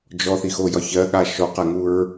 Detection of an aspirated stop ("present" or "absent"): absent